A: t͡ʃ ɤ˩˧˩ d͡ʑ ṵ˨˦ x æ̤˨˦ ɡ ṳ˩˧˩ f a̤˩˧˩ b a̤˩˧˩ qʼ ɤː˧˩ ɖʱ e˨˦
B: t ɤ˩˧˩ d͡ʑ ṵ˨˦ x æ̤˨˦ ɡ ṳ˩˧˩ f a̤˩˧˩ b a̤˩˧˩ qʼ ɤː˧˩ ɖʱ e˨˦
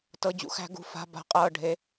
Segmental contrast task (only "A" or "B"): B